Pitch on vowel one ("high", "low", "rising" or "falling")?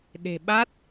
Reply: low